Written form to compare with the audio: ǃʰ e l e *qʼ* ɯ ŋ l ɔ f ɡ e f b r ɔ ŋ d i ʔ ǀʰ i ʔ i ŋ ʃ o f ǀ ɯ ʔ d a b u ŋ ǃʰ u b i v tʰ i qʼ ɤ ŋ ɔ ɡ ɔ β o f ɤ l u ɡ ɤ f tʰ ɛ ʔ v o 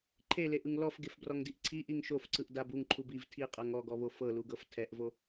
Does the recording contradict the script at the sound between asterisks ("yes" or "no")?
yes